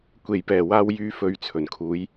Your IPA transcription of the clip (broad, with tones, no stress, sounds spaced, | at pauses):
kʷ e˨˩ j p ɛː˨˩ w aː˨ w j yː˨˧ f ɵ˨ ɥ t͡sʰ ɵ˨˩ n kʰ uː˨˧ j